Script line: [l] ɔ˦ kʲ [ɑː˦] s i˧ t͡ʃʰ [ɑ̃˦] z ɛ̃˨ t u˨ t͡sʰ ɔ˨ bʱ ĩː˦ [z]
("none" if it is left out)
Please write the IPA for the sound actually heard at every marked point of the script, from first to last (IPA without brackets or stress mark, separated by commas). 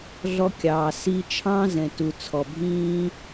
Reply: ɮ, ɑː˨, ɑ̃˦, none